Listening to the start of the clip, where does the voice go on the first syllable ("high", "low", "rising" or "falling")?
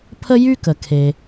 high